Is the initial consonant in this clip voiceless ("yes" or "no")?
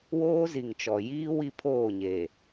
no